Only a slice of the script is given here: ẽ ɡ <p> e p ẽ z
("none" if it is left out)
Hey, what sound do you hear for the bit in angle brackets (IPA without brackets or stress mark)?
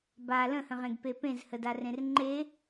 p